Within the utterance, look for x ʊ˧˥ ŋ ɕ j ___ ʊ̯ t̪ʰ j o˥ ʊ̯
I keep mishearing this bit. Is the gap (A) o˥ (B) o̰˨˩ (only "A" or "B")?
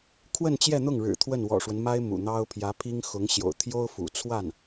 B